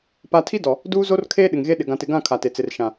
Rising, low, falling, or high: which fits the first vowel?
high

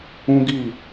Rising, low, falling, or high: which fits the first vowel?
high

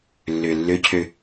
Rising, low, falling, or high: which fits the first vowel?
low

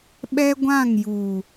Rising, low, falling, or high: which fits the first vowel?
high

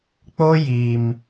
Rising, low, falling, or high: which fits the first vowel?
high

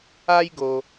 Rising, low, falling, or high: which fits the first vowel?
high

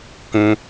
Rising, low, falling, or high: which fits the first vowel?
high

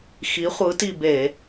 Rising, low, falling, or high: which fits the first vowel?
rising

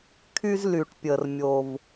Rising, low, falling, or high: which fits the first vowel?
high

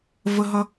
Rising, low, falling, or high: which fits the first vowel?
high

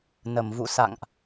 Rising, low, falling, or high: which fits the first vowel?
low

